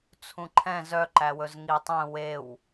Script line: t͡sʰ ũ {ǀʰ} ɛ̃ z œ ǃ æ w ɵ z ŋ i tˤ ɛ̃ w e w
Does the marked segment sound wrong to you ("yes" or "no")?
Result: yes